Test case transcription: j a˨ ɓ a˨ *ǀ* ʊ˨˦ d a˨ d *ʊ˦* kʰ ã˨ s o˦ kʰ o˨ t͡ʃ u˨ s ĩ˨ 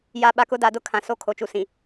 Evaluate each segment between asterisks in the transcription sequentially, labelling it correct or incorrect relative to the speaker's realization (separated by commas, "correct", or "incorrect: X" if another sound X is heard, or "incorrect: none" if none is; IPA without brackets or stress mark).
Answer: incorrect: k, correct